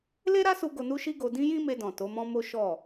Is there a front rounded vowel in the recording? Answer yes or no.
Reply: no